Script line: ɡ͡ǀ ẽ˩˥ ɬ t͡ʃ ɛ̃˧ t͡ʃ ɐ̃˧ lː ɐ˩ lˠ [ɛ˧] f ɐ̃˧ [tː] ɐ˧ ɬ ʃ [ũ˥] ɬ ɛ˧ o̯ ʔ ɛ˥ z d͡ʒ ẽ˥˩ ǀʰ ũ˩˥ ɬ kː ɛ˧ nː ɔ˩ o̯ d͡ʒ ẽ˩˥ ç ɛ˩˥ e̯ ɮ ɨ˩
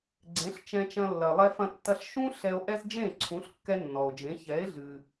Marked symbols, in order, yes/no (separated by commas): yes, yes, yes